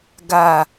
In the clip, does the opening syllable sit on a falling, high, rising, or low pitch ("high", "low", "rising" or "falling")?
low